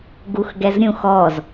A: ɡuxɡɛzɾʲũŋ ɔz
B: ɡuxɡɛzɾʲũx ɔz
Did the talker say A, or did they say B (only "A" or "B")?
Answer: B